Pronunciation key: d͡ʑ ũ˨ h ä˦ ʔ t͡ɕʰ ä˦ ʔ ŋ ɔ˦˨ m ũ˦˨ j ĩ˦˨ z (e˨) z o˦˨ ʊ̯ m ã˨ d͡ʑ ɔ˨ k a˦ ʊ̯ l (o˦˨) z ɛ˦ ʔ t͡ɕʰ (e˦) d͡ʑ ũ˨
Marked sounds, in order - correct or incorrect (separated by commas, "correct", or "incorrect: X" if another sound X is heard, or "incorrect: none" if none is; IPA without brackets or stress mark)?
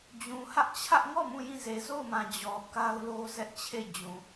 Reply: correct, incorrect: o˦, incorrect: e˦˨